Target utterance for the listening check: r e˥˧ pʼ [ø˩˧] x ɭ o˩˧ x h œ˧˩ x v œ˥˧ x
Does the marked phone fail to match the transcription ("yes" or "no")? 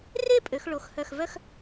no